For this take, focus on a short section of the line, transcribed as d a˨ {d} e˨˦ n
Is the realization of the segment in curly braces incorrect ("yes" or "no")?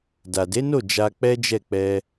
no